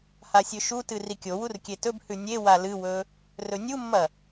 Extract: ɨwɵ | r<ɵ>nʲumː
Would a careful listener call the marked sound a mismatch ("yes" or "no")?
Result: no